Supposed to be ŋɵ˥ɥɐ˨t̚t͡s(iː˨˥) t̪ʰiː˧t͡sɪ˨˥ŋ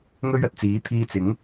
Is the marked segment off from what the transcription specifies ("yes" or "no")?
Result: no